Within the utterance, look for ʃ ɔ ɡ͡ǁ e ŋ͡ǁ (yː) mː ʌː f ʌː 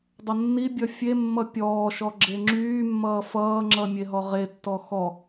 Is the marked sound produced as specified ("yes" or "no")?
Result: yes